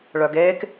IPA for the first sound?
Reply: ɭ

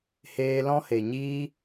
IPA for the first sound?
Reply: h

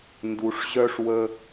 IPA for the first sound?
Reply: n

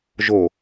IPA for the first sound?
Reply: ʒ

